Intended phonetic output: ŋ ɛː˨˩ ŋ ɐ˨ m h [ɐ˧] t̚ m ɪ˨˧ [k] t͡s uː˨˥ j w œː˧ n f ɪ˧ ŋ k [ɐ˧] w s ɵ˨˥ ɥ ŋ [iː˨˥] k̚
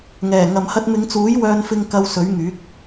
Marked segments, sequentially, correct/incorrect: correct, incorrect, correct, incorrect

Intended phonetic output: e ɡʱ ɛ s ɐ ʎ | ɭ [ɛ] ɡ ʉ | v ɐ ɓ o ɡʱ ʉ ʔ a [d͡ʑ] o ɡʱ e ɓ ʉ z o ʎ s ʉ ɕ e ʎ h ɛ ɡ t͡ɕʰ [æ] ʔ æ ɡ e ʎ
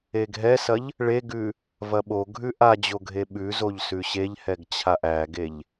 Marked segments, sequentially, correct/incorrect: incorrect, correct, incorrect

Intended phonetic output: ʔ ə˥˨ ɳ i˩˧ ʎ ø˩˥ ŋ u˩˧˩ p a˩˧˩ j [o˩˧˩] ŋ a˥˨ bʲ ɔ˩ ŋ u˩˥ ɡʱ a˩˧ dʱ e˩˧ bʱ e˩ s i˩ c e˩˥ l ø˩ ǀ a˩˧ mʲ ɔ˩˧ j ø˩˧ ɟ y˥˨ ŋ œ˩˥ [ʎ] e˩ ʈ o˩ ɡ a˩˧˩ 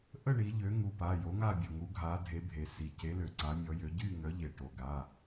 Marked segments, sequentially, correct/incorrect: incorrect, correct

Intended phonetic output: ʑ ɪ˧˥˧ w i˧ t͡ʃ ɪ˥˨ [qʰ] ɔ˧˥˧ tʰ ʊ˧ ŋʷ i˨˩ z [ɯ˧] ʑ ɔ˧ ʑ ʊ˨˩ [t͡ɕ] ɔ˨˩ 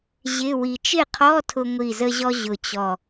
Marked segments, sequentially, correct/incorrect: correct, incorrect, correct

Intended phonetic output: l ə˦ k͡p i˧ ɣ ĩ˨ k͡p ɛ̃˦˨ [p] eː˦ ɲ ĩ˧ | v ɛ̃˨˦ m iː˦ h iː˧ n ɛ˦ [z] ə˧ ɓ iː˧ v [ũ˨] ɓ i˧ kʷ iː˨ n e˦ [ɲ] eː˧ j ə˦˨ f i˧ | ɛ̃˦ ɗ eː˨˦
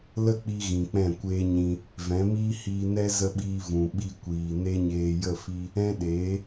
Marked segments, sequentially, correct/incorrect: incorrect, correct, correct, correct

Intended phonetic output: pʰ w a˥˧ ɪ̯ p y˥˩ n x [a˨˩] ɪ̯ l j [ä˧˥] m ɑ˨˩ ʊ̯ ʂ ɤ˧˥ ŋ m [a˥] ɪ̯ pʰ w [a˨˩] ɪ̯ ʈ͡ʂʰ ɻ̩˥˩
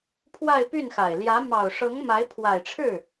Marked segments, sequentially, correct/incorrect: correct, correct, incorrect, correct

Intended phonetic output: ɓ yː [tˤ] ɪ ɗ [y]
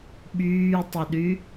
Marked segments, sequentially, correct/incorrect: correct, correct

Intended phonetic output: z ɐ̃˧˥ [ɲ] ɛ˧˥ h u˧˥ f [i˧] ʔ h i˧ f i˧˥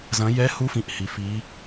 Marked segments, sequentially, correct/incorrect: incorrect, incorrect

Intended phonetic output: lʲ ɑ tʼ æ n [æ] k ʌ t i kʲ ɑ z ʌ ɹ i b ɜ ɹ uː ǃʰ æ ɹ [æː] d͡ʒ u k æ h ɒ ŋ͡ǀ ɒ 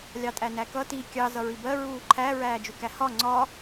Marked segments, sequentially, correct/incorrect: correct, correct

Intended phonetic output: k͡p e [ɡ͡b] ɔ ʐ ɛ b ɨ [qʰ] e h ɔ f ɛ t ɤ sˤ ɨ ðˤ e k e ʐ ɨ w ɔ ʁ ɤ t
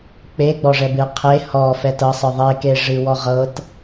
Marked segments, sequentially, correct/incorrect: correct, correct

